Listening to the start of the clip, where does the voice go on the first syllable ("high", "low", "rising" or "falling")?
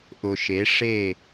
low